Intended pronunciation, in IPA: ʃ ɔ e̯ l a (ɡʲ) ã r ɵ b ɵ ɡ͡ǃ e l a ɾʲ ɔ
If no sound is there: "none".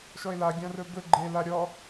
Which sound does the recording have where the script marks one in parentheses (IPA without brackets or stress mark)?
ɡʲ